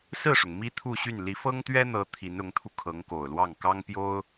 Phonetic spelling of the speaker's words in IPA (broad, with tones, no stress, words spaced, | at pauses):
sɹ̩˥˩ʂʊ˩ŋ mi˥t̪ʰu˥˧ɕy˥˩n li˧˥fɤ˥ŋt̪ɥɛ˥n̪ɤ˧˥ t̪ʰi˧˥nʊ˧˥ŋt̪ʰu˧ kʰɤ˧˥ŋko˨˩ʊ̯lwɑ˥˩ŋ kɑ˥ŋpjo˥ʊ̯